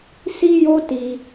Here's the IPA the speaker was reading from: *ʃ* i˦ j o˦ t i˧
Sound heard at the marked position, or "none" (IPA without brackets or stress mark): s